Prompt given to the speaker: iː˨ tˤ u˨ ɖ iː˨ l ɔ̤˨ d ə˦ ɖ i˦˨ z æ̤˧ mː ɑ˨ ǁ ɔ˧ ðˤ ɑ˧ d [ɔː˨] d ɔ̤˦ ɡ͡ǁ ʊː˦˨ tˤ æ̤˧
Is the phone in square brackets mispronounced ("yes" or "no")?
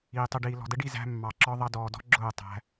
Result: no